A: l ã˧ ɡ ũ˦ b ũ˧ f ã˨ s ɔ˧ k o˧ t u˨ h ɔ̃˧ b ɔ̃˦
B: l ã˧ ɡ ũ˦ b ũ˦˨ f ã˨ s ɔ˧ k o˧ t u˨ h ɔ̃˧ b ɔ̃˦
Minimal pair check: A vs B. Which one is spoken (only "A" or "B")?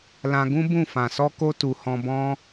B